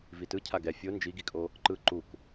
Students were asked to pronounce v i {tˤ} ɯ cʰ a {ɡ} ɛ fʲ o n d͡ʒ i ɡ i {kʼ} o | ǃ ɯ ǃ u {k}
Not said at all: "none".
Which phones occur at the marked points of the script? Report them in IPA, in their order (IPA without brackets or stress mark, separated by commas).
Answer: t, ɡ, kʼ, k